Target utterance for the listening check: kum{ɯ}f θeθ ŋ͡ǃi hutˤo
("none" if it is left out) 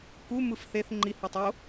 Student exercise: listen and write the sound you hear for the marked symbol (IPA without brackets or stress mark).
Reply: ɯ